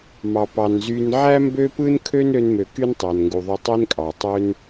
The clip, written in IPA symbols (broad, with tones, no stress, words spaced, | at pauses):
mɑ˨pɑ˨nzy˧n ʕæ˦mbø˦pɯ˦n kʰø˦nɾø˧nmø˨ ky˦ntˤæ˨nŋɡu˨ ðˤø˧tˤe˦nkʼɑ˨tˤø˦n